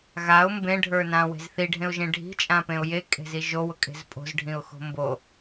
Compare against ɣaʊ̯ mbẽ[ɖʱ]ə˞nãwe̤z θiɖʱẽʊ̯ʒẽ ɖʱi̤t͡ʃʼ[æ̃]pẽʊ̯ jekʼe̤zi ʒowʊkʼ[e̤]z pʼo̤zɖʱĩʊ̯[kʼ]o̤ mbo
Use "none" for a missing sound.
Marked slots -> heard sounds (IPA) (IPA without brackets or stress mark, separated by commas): ɖʱ, ã, e̤, x